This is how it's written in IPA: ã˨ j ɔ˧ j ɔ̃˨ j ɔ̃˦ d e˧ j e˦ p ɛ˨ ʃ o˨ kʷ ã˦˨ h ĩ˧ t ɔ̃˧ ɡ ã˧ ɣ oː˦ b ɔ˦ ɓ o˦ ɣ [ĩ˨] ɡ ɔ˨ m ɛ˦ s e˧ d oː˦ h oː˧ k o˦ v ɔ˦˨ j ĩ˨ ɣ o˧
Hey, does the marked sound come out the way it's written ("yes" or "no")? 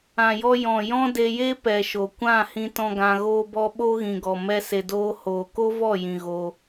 yes